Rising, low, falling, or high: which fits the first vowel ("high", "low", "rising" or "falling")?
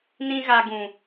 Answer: high